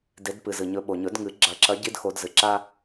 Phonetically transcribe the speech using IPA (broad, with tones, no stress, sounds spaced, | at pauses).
d e˨˦ d p ɨ˩ z ɨ˩ ɲ ɵ˨˦ ɓ o˩ ɲ ɵ˨˩˦ d ŋ ɨ˨˩˦ ɡ͡ǁ ɐ˨˩˦ ǁ ɐ˨˦ ɟ i˥ d x o˨˦ d z ɨ˩ ǁ a˥